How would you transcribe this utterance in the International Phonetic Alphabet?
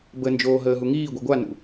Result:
b ə n d͡ʒ oː ɦ əː ɦ u ŋ iː ɡʷ i ɡʷ a n ṵ

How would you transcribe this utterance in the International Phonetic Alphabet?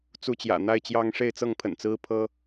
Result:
t͡s u˦ t͡ɕ j ä̰˨˩ n̪ a˦ ɪ̯ t͡ɕ j ɑ˦ ŋ ʂ e˥˨ ɪ̯ t͡s ɤ˥˨ ŋ pʰ ə̰˨˩ n t͡s ɹ̩˦ pʰ ɤ˦

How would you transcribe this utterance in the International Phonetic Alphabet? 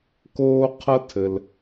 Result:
k oː˥ qʰ ɐ˥ tʰ ɘ˩ l

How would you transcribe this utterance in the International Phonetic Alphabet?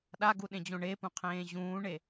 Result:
ɗ a ɡ u ɗ ẽ d͡ʑ õ ɳ e p ũ qʰ ẽː ʑ ũː ɳ e

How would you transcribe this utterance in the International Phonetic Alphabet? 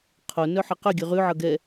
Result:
qʰ o n œ ħ ʌ q œ ɡʲ ʉ ʁ ʉ ʕ ʌ ɡ ɛ

